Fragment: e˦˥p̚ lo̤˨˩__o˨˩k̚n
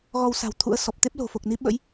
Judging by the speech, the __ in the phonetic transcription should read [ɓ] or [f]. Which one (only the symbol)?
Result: f